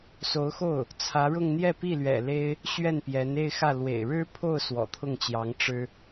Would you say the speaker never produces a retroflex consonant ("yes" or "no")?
no